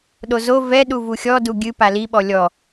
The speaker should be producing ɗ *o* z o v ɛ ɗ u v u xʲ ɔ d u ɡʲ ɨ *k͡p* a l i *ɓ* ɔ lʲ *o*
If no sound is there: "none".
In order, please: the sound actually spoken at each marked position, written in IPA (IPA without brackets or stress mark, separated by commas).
o, p, ɓ, ɔ